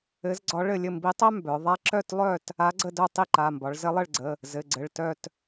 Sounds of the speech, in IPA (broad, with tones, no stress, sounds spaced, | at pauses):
ɘ˧˥ z ɡ͡ǀ ɒ˧˥ ɭ ɘ˥˨ lʲ ɘ˥˨ m b i˧˥ tˤ œ˥ m b œ˩˧ ðˤ a˥ ǁ œ˥˨ t lˠ œ˥˨ t | a˧˥ ɡ͡ǀ ə˥˨ d œ˥˨ tˤ i˥˨ ǃ a˩˧˩ m b ɒ˩˧ ɭ z ɘ˧˥ lˠ ɘ˥˨ ɭ ɡ͡ǀ ə˩˧˩ | z ɘ˩˧˩ ɡ͡ǀ ɘ˩˧˩ ɭ t œ˥˨ t